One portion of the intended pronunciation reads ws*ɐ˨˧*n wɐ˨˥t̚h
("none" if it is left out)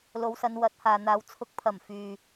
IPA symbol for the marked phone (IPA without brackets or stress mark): ɐ˨˧